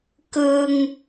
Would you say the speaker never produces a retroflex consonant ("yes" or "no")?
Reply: yes